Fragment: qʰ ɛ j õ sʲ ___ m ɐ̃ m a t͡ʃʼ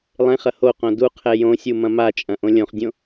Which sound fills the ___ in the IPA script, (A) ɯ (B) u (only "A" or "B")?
B